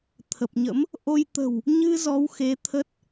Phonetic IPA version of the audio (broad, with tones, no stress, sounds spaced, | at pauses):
t̪ʰ ə˨˩ p̚ ɲ ə̰˧˥ m | ʔ o˧ j t̪ ə̤˨˩ w | ɲ ɨ˧ z ɔ˨˦ w x e˨˦ t̪ʰ ə˦˥ t̚